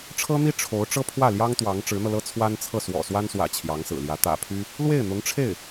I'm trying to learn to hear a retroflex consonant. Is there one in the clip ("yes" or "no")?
yes